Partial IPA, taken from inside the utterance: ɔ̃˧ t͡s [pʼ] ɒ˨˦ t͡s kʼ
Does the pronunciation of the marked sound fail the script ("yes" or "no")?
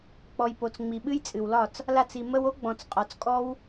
yes